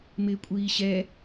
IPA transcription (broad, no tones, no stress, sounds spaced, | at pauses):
m ɪː kʷʼ iː ɕ ɛ